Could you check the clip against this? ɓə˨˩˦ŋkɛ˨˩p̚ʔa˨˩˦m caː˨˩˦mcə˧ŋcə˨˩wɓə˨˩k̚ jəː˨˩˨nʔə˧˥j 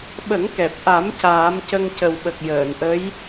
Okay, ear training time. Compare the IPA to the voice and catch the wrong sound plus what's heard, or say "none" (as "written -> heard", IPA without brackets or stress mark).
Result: none